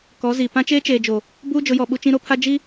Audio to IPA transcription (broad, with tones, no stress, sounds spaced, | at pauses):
k ɔ˨˦ z i˨ p ã˦ t͡ʃ eː˦ t͡ʃ eː˨ d͡ʒ o˨ | b uː˦ d͡ʒ ʊ˨˦ j ɔ˨ ɓ u˦ t͡ʃ ĩ˦ ɾ o˦ pʰ a˦ d͡ʒ i˦